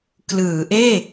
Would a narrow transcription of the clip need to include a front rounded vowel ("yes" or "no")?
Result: no